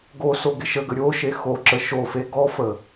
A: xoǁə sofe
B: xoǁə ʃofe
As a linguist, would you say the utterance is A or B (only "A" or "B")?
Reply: B